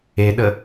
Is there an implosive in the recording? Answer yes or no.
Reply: yes